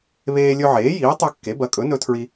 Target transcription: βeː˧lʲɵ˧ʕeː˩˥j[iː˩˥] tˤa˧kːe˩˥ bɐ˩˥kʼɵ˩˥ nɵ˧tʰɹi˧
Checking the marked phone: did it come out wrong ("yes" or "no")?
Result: no